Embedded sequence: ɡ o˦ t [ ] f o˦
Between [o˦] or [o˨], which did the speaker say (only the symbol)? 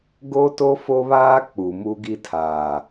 o˦